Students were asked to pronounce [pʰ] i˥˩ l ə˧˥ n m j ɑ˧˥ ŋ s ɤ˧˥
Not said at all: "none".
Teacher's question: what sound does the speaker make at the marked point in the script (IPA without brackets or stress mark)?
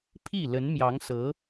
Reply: pʰ